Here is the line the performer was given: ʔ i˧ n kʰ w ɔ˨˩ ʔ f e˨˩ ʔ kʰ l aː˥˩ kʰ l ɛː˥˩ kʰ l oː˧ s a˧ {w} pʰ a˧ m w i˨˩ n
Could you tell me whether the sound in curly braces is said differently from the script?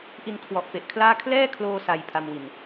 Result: yes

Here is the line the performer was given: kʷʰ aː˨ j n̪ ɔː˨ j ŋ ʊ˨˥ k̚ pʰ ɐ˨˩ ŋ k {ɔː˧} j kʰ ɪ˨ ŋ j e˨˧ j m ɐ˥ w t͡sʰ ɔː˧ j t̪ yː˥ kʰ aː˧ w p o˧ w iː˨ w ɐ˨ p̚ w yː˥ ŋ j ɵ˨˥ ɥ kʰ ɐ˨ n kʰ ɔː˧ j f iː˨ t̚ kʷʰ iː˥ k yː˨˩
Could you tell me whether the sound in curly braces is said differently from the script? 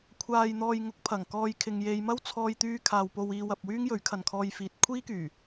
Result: no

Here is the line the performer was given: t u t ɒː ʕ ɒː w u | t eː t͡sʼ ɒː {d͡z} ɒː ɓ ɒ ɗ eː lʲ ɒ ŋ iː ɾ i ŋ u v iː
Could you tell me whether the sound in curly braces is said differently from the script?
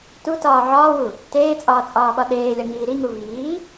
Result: yes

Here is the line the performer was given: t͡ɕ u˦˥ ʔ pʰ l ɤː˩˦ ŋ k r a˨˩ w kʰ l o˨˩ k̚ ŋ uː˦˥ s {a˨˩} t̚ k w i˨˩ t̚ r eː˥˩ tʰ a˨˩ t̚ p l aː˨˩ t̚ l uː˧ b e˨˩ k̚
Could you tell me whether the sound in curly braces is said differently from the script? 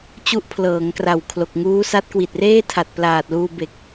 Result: yes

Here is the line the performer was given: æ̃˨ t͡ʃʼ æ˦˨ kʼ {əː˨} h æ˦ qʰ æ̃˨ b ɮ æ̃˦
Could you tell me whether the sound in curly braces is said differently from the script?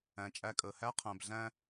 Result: no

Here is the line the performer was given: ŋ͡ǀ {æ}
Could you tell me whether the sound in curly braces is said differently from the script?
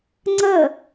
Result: yes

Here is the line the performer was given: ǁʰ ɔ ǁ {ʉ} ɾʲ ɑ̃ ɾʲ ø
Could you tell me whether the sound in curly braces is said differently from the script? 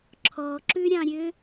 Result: no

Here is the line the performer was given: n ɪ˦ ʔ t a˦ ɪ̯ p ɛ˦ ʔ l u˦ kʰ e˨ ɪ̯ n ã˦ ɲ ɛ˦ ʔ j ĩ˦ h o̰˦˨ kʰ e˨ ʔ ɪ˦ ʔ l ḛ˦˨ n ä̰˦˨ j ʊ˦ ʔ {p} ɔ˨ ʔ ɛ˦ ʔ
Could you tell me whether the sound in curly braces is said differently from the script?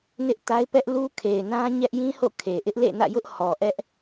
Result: yes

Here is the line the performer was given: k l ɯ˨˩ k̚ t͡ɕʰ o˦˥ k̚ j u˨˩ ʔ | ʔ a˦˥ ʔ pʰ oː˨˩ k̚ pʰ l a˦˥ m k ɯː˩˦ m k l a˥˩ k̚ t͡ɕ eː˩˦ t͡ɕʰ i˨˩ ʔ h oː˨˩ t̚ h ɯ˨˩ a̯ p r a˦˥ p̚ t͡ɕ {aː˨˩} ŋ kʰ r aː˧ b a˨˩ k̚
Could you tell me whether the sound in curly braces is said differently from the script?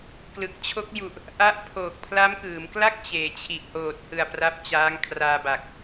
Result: yes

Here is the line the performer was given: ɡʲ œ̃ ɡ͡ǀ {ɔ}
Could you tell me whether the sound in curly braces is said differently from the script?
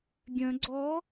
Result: no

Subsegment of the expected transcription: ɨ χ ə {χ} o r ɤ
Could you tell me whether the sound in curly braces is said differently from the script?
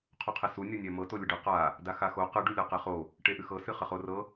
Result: no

